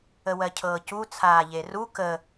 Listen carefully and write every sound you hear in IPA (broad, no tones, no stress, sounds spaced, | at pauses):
ə w ɜ cʰ ɤː c u t͡sʰ aː ʎ e r u k ə